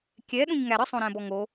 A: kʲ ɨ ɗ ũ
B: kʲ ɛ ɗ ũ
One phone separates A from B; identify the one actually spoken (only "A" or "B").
B